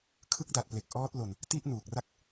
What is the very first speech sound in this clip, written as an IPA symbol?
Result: kʰ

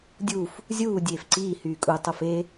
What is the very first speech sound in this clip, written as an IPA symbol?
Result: dʲ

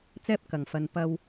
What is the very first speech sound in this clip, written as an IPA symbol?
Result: t͡s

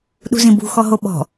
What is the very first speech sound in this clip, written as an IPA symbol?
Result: ɗ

